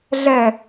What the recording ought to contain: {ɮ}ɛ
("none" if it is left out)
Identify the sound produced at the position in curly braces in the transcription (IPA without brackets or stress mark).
ɮ